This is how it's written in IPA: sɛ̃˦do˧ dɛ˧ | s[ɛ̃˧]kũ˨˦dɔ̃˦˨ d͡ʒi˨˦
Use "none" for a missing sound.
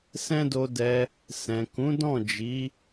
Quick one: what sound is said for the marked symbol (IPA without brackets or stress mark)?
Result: ɛ̃˨